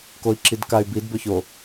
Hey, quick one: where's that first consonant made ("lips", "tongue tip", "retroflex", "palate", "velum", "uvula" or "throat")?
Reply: velum